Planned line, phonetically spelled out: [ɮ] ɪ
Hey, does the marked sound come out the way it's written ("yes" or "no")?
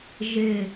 no